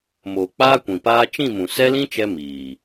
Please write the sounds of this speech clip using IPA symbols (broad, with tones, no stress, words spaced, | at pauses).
moː˨ k͡paː˦kʷĩ˨paː˦ t͡ʃĩ˦˨mũ˨ sɛ˦lĩ˦t͡ʃɛ˧ miː˨